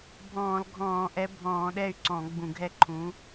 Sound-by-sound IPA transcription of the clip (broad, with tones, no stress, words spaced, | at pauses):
bʱɔ̃ː˧˩˧lɡʱɔ̃ː˧˩˧ʔɛ˨˥ bʱɔ̃ː˧˩˧ ɗɛ˥˨y̯ǀɔ̃˧˩˧ɡ͡bũ˧˩˧ɡʱɛ˥˨ ǃʰũ˨˥